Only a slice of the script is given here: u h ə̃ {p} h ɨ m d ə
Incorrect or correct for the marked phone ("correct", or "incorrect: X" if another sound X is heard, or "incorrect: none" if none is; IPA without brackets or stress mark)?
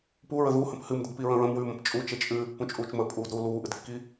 correct